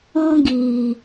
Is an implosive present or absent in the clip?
absent